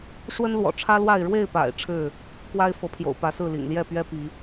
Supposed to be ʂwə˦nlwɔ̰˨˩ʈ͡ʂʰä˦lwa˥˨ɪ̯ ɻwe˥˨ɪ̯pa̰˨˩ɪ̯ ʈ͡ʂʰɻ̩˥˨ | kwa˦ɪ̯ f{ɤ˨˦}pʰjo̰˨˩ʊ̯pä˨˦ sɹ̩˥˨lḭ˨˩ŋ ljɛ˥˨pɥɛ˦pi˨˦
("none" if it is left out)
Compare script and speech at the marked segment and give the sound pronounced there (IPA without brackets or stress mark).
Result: ɤ˨˦